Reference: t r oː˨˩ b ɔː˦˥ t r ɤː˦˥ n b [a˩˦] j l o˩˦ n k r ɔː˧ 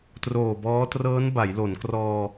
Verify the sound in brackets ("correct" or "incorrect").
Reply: correct